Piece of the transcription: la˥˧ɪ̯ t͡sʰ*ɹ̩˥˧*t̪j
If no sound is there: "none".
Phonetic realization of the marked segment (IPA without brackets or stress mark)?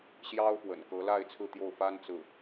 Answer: ɹ̩˥˧